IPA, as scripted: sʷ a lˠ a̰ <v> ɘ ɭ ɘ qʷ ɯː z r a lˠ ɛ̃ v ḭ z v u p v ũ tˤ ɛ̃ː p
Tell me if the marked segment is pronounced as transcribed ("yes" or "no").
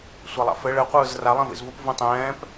no